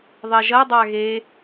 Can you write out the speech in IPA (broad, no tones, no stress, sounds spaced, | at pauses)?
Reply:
ðˤ ɛ ʒ ɐ dˤ a ɣ e